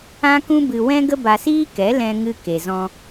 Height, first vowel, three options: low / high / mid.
low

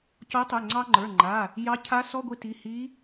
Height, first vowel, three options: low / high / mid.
mid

